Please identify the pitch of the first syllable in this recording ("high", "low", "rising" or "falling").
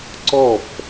falling